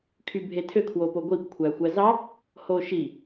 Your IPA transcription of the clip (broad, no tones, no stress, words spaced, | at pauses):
kʰybʱetʰø kʰwopoɡʷip kʷʰæxʷæzɑ | hoʃi